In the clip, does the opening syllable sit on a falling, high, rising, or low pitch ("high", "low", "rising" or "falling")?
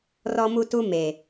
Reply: high